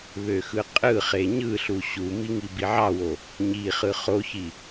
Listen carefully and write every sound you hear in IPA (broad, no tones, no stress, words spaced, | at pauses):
βøxɯqʼɯχe ɲɯɬu ɕumi ŋibiʕɑwo | ɲiχɯ χoçi